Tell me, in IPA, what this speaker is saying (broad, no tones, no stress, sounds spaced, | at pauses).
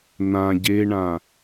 n̪ ã ɟ e ɳ ã